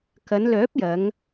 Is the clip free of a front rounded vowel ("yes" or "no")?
no